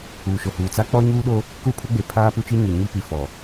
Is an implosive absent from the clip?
no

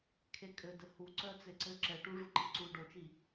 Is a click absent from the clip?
no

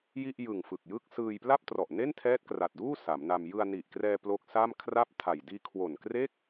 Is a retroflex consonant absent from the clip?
yes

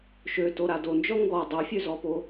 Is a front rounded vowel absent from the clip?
no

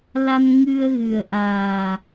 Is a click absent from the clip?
yes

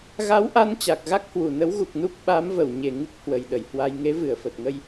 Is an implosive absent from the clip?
no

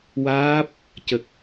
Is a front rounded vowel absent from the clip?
yes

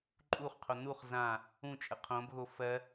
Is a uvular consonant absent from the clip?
no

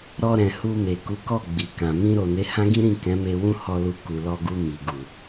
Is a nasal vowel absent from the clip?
no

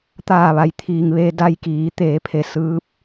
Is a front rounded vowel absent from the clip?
yes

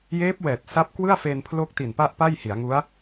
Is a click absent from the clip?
yes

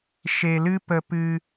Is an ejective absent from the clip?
yes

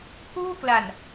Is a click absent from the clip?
yes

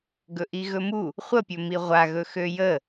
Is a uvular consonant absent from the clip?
no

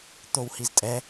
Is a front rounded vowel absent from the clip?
yes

